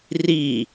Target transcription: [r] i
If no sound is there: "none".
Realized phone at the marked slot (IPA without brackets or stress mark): r